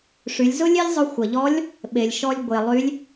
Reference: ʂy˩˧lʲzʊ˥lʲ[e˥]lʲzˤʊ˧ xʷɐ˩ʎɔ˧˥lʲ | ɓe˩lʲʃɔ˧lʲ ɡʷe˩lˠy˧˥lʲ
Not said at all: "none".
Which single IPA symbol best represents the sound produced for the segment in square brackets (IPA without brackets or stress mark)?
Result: e˥